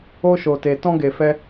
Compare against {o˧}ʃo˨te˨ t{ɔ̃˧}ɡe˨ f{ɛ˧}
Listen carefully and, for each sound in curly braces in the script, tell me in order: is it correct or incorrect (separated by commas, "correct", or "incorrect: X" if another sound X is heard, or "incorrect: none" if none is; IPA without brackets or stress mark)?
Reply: correct, correct, correct